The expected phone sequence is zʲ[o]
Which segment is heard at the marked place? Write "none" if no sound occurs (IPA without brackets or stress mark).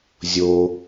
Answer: o